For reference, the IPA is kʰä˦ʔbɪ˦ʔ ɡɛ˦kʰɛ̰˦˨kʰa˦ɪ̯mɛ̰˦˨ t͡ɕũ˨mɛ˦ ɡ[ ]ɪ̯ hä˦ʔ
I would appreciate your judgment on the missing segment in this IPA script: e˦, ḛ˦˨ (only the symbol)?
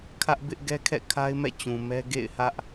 ḛ˦˨